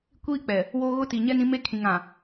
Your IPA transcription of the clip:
kʷ iː˦ k͡p ɛ˨ | w o˦ ɣ ʊ˦ t i˨ ɲ ɛ˦ n ĩ˦ m e˦ kʰ ĩ˨ ŋ ã˨

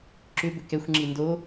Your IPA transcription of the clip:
ǁ ʏ b ʏ k ɛ xʷ ŋ͡ǁ i n d o

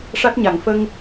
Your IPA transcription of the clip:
ʂ a˦˥ t̚ ɲ a˨˩˨ ŋ f ə˧ ŋ

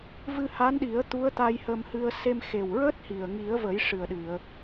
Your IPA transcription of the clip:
v ɨ˧ h a˧˥ n ɗ i˨˩˦ ə̯ t̪ u˧˥ ə̯ t̪ a˧ j h ə˧ m h ɨ˧ ə̯ s e˧ m x e˨˩ w ɹ əː˦˥ t̚ h i˨˩ ə̯ ŋ i˨˩˦ ə̯ v ə˨˩˦ j ʂ ɨ˨˩ ə̯ ɗ ɨ˨˩˨ ə̯

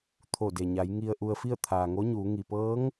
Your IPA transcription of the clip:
t̪ʰ o˧˩ d e˩ ɲ a˩˧ j ŋ i˧ ə̯ ʔ u˧ ə̯ f i˥˨ ə̯ t̪ʰ aː˩ ŋ o˧˥ ɲ uː˩˧ ŋ i˩ p ɤː˧˥ ŋ

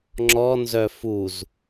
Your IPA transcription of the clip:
ŋ͡ǁ ɔ n z œ f u z

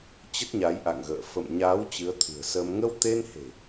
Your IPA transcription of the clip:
t͡ɕ ə˦˥ t̚ ɲ a˨˦ j ʔ a̰˧˨ ŋ ɣ ə̰ː˧˨ f ə̰˧˨ m ɲ aː˨˦ w t͡ɕ ɨ˨˦ ə̯ t̪ʰ ɨ̤˨˩ ə̯ s əː˧ m ŋ ə˧ w t̪ e˧ n h e̤˨˩

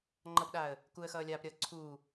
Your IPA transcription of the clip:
ŋ͡ǃ ʌ p ɗ aː ə̯ | k u ə̯ x ʌː lʲ aː p ɾʲ ʌː ǀʰ uː

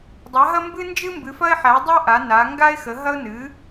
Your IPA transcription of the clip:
dˤ a˨˥ ɦ ɐ˥ m b ɨ˥ n d͡ʒ ɨ˥ m b ɨ˨˥ f ɐ˥ ɪ̯ ħ æ˨˥ dˤ ɐ˥ ʔ a˨˥ n a˨˥ ŋ ɡ a˥ ɪ̯ x ə˨˥ ɦ ɐ˥ ʊ̯ n ɨ˨˥

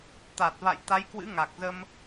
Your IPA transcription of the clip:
t̪ a˨˩ t̚ v a̰˧˨ j t̪ a˨˦ j k w ɨ̰˧˥ ŋ a˨˩ k̚ z ə˧ m

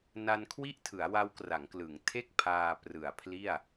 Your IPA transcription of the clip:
n a˧ n kʰ w i˥˩ ʔ tʰ ɯ˩˦ a̯ w a˦˥ w k r a˩˦ ŋ k l ɯ˩˦ ŋ tʰ e˥˩ k̚ pʰ aː˧ p r ɯ˨˩ a̯ pʰ l i˥˩ a̯

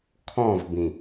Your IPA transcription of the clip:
kʰ ɔ̃ v b ĩ

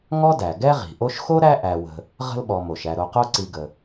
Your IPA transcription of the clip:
ŋ ɔ˥ d æ˩ ɡ ɛ˦ ʁ i̤˩ ʔ o˦ ʃ x o˥ ɾ æ˦ ʔ æ˨ w ə̤˨ | ʁ ə̤˦ l ɓ ɔ˨ m o˩ ʃ æ˨ ɾ o˨ q o˦ ǀ i˨ ɡ ə˩

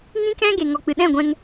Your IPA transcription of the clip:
ŋ ĩ˦ k ɛ̃˦ ɡ e˨ ŋ ɔ˨ k͡p ɨ˨ ɗ ɛ̃˦˨ ɡʷ ɛ̃˦ ŋ

